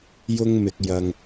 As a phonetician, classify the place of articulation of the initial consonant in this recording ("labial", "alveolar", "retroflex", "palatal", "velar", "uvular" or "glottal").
palatal